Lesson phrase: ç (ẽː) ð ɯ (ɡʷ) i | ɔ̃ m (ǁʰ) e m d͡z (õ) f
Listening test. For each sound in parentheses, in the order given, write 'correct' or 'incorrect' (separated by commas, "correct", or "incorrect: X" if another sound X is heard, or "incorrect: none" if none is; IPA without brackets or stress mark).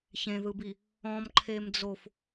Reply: incorrect: ẽ, incorrect: b, incorrect: ǃʰ, incorrect: o